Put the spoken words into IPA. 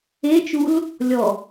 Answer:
e t͡ʃ u l | lʲ ɔ

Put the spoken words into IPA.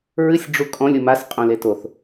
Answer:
ɹ ɨ sʲ ɖ͡ʐ u kʼ ɔ̃ lʲ u m a s qʼ õ l e t o θ

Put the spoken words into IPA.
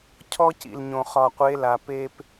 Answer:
cʰ ɔ˦ c ḭ˨ l ɲ õ˨ χ ɒ˨ qʷ e˨˦ l a˨ p e˦ p

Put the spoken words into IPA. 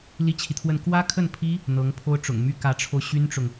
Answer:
l i˥ t͡ɕʰ i˨ t̪ʰ w ə˥˩ n k w ä˥ kʰ ə˥˩ n pʰ i˥ | n̪ ɤ˧˥ ŋ pʰ o˥ ʊ̯ ʈ͡ʂ ʊ̰˨˩ ŋ m y˥ k ä˧˥ ʈ͡ʂʰ o˧ ʊ̯ ɕ y˥ n ʈ͡ʂ ʊ˨ ŋ

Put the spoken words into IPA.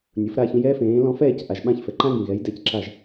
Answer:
nʲ ʊ˩˥ f ɾ a˥˩ ç ĩ˧ j ɛː˥ f ẽː˩˥ l ɔ̃˧ f ɛː˥˩ c ʔ a˩ ʒ ɓ ã˥˩ ç f ɛ˩ ǃ ã˥ ɡ ĩ˩ ɣ ɛ˩˥ j d ɛ˧ c ǁ a˥˩ ʒ

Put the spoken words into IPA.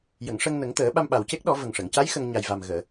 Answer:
j ə˨˩˨ ŋ ʂ ə˧ ŋ n ə˨˩˦ ŋ t̪ əː˨˩˦ ɓ a˧ m ɓ a˨˩ w c e˦˥ k̚ ɗ ɔ˨˩˦ v ə˨˩ ŋ ʂ ə˨˩˨ ŋ c a˧˥ j x ə˧ ŋ ɲ a˨˩ j v a˨˩ m ɣ əː˨˩˨

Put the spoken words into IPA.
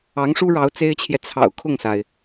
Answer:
ɑ˧˥ ŋ ʂ u˥ ɻ ɑ˧˥ ʊ̯ t͡s e˥ ɪ̯ t͡ɕʰ j ɛ˨ t͡sʰ ɑ̰˨˩ ʊ̯ kʰ ʊ˥˩ ŋ s a˩ ɪ̯

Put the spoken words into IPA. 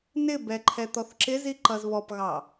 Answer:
n ɪ b ɛ ǃʰ ɛ t̪ ɔ θ ǁ ɪ z i ǃ ʌ z β ɔ p ɣ ɑ

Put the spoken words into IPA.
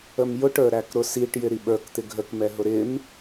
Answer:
ə m j ʊ ʈ ə˞ ɾ æ k ɾ ʊ s i ʈ j ɪ ɾ i ɓ ə˞ k t̪ ɪ ɡʱ ə k m ɛ ɦ ʊ ɾ ɪ m

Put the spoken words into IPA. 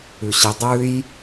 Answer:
ʉ ɕ i dˤ ʉ j

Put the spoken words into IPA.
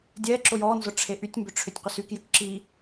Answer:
dʲ ɛ ǁ ʊ j ɔ n z ʊ ʈ͡ʂʰ e ʔ y tʲ m b ʏ ʈ͡ʂʰ ʏ tʲ qʷ ɪ s y k j ʏ k ǁ i

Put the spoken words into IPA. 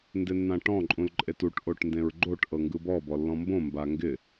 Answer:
n d ɪ nː ã ʈ ɔ̃ ǃʼ ũ l ǃʼ e t u ʈ ʔ o ʈ n d ẽ ɹ ɡ͡ǃ o ʈ ʔ ɤ ŋ ɡ ɯ b ɔ b ɔ lː ɔ̃ m b õ m b a ŋ ɡ ɪ

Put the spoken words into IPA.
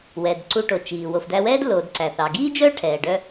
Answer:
w ɛ˩ d ǀ u˧ ʈ o˩ t͡ʃ iː˩ w o˩ f d æ˧ w ɛː˥ d l oː˩ d ǀ æ˩ θ ɑ˩ ɡ iː˥ d͡ʒ œː˥ ʈʰ ɛː˩ ɖ œ˧

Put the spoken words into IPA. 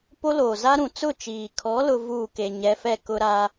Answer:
p o˦ l oː˨ z a˦ ɾ ũ˨ t͡s ʊ˦˨ t͡ʃ iː˨ kʰ ɔ˨˦ l ʊ˦ v uː˦˨ k e˨ ɲ ɛ˨˦ f ɛ˦˨ k ʊ˦ ɾ aː˦

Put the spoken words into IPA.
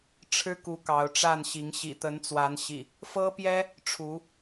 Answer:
ʈ͡ʂʰ ɻ̩˦ k u˨˦ k ɑ˨˦ ʊ̯ ʈ͡ʂ a˥˨ n ɕ i˨˦ ŋ ɕ ḭ˨˩ t̪ ə˨˦ n t͡s w a˨˦ n ɕ ḭ˨˩ | f ɤ˦ p j ɛ˦ | ʈ͡ʂʰ u˨˦

